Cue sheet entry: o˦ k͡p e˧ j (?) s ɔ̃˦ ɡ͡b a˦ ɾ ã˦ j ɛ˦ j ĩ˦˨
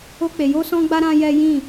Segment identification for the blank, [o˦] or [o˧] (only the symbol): o˦